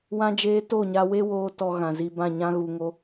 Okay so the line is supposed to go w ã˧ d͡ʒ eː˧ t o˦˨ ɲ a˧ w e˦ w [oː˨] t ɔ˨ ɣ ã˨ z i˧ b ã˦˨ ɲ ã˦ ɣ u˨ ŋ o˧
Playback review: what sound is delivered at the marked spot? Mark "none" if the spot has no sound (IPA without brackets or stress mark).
oː˧